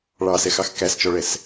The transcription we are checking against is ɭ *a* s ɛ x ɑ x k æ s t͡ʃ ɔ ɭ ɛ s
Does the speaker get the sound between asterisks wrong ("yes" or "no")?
yes